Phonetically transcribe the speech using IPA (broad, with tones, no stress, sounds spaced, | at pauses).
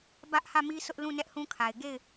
b ä˦ ʔ h ä˦˨ m i˦ sʰ ʊ˦ ʔ l ũ˦˨ n ɛ˦ ʔ h ũ˦ kʰ a˨ ɪ̯ ɡ e˦˨ ɪ̯